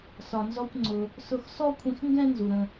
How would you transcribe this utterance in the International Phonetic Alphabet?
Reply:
sɒ˧nzɔ˦kʷ ŋ͡ǀʊ˧ | sʊ˧xsɔ˦kʷʰĩ˧xŋɡɛ̃˦ nzu˨ɾə̃˧

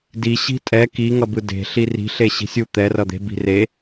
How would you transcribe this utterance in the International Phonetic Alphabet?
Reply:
di ɕi̤tʼɛ ki ŋʌbɯde̤ ɬiri̤ ɬeɕi̤sʲu t̪ɛ rʌd̪e̤ bi̤re

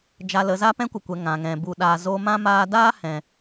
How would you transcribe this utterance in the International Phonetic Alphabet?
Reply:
d͡ʒa˧lə˨˦za˦ pɛ̃˦kʷə˨kʷɛ˨ ŋã˨ŋɛ̃˨bu˧ ɗaː˨zo˧mã˦ maː˧daː˦ hɛ̃˧

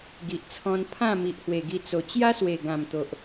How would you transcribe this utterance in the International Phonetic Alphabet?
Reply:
ɡi˨ʔt͡sʰɔ̃˧n pʰã˥˧mi˨ʔhwe˨˩ ɡi˧t͡so˨˩ t͡ɕja˦swe˨˩ɡã˨˩m t̪o˨ʔ

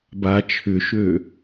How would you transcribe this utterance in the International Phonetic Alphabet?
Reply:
ba t͡ʃʰʏʃø

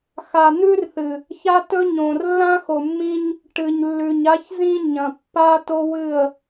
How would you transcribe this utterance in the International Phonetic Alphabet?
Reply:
xa˨n̪ʉ˦rθɨ˨ | ça˦tɵ˦ɲõ˨r lːã˦xo˨mːĩ˦ɲ | ʈɨ˨ɲlːʉ˨ɲa˦çzĩ˦ ɲɐ̃˨pːa˦to˦wɨ˦˨ə̯

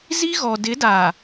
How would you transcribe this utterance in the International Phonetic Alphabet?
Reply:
zi˦ɣɔ˨ dɪ˨˦da˨

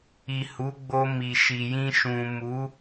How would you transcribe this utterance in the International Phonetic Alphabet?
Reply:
i˨ hu˨˦ɡ͡bo˧ mi˨ʃi˨jĩ˧ ʃũ˨mu˨˦

